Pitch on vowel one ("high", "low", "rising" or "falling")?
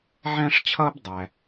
high